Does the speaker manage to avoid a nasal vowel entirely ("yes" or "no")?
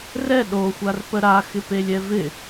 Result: yes